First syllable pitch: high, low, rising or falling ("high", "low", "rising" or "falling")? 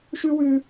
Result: high